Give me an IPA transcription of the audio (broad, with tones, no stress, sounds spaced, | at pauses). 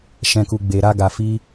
ʃ ɛ̃˧ k u˧ ɡ͡b e˧ ɾ a˦ ɡ a˧ f i˦